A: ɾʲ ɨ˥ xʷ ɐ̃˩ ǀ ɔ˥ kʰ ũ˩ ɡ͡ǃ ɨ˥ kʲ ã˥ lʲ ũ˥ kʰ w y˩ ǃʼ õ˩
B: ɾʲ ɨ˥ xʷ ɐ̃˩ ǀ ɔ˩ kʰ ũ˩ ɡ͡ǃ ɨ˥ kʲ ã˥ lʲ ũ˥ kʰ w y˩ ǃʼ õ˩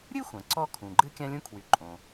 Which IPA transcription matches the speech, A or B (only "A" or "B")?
A